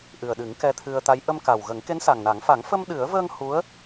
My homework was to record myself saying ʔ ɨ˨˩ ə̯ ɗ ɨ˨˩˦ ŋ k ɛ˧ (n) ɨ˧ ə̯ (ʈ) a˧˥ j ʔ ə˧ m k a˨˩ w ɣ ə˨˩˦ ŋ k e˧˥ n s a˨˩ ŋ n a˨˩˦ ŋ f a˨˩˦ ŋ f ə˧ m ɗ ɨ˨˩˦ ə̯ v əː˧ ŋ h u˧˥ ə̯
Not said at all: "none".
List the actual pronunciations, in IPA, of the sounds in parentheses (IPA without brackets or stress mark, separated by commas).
t̪ʰ, t̪